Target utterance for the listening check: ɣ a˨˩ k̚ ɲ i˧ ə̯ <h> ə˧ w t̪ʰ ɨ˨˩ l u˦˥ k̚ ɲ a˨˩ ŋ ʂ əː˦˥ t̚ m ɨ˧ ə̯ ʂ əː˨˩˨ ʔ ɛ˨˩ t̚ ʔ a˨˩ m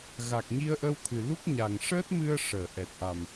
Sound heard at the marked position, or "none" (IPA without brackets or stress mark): ʔ